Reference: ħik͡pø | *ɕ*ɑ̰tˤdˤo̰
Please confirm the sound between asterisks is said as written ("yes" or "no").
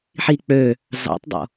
no